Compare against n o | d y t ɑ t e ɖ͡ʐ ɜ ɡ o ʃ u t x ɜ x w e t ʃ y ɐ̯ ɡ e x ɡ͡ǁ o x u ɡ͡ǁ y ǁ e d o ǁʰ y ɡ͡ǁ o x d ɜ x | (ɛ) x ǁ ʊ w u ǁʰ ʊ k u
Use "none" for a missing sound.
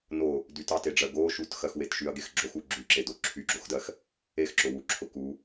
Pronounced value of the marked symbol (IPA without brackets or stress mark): e